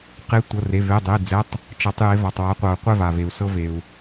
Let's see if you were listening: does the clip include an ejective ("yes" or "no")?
no